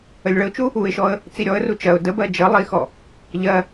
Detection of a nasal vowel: absent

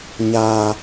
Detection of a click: absent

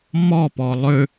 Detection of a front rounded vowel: present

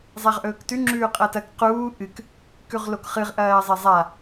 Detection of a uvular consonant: present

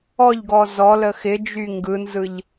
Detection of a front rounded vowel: present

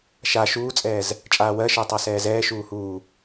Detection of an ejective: present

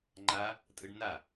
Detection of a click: present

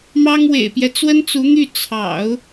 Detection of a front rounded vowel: present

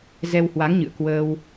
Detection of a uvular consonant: absent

